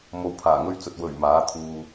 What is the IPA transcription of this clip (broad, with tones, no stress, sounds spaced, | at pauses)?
m o˨˧ w pʰ aː˨˩ ŋ ɵ˧ ɥ t͡s ɵ˨ t̚ w ɵ˨˩ ɥ m aː˨˥ t̪ʰ uː˧